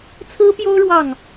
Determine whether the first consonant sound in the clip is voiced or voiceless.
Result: voiceless